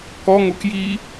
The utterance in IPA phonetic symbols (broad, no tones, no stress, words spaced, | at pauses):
kɔ ŋokji